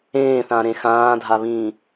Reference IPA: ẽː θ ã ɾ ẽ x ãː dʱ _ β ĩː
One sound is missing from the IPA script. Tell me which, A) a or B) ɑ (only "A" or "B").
A